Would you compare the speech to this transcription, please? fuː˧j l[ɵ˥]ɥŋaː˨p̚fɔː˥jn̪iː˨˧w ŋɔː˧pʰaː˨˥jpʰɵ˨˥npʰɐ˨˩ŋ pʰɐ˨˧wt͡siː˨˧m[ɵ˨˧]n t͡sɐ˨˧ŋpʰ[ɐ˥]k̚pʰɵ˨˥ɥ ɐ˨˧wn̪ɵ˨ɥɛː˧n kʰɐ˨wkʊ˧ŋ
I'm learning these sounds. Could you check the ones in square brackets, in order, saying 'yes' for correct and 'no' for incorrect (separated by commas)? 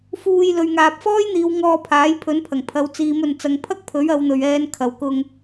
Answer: no, no, yes